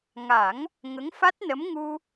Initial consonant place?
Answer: velar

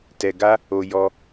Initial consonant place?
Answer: alveolar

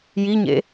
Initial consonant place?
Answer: palatal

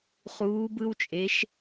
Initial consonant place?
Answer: uvular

